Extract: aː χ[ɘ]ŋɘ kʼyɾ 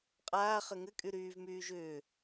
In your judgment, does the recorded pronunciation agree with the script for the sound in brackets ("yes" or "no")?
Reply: yes